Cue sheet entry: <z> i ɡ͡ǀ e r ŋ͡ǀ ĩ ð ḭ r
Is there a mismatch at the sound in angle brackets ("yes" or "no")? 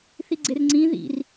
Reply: yes